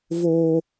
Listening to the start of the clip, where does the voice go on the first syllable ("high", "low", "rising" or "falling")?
high